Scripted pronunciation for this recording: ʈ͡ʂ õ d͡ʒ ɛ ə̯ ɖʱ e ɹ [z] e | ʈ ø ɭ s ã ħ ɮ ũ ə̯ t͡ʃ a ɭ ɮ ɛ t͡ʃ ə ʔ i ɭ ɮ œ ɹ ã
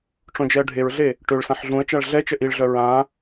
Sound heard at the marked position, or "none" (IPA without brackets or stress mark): ɮ